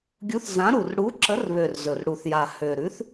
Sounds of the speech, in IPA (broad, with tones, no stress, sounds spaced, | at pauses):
ɡʲ u˨˥ θ z ã˨˥ ɾ u˨˩ r ɽ u˨˥ ǁ ə˨˥ r β ø˨˩ r z ɵ˨˩ r ɽ u˨˩ θ j a˨˩ h ø˨˩ ɾ ʉ˨˥ θ